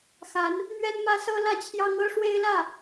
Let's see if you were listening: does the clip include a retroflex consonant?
yes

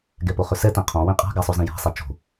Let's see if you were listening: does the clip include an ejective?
yes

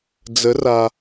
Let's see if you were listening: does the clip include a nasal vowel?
no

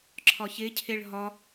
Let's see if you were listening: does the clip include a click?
yes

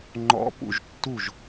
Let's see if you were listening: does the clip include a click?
yes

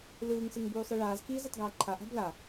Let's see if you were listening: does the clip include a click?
yes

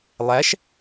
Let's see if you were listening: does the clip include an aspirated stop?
no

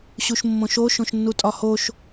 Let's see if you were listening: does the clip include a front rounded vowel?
no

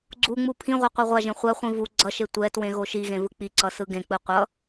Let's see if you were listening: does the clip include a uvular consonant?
yes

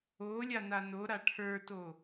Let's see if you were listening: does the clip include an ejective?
no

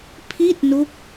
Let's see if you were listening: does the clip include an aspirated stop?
yes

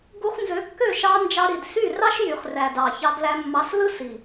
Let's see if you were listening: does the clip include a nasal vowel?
no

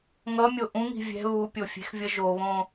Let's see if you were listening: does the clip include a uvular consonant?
no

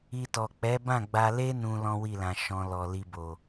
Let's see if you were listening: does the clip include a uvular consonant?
no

